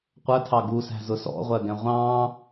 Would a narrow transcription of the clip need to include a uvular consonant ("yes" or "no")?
yes